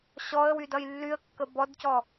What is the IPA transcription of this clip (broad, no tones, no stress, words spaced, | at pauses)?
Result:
ɕɔə̯wydʌj lːyə̯kːə bɔdcɔ